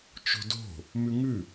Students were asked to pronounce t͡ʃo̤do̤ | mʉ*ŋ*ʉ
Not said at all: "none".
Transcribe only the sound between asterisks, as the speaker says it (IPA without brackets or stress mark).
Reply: ŋ